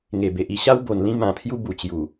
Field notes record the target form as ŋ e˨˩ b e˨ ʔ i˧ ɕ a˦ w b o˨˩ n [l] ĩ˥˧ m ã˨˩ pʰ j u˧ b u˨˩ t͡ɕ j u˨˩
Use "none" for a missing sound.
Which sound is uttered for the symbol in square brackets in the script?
l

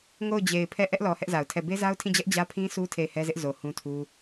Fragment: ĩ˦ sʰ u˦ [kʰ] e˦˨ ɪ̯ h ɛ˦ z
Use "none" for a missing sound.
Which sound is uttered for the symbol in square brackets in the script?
tʰ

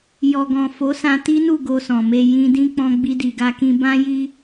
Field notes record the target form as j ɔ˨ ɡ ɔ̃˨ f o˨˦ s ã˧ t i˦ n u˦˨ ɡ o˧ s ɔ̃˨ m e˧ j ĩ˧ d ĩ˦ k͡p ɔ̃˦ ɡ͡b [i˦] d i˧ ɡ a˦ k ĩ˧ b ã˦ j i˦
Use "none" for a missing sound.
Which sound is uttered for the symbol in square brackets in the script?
i˦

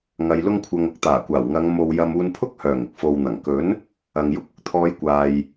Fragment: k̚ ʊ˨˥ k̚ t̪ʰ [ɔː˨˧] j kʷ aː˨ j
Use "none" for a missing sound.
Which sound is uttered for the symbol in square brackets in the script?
ɔː˨˧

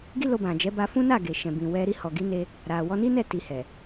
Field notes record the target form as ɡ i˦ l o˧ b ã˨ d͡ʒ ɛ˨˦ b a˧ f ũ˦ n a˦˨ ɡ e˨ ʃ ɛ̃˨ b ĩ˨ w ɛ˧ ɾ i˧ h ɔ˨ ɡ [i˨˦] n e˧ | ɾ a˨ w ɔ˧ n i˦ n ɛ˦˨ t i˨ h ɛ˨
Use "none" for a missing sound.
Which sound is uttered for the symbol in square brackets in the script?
i˨˦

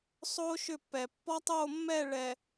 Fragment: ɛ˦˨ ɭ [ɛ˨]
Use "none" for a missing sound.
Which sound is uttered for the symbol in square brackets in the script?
ɛ˨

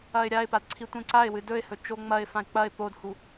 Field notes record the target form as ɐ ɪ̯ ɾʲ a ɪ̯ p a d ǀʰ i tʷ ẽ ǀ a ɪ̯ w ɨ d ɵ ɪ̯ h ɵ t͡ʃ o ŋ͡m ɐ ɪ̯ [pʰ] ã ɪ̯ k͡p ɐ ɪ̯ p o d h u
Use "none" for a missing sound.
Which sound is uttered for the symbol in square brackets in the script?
f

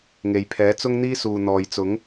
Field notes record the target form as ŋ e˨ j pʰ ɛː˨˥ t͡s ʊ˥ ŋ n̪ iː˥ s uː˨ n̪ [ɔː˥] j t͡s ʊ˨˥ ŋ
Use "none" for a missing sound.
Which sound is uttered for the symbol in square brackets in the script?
ɔː˨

